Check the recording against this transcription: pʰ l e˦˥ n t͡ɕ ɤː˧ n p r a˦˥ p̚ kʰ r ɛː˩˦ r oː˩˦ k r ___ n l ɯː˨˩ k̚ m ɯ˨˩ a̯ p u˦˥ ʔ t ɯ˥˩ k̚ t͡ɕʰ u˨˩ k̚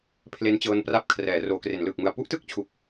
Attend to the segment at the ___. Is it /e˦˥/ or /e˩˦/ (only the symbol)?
e˩˦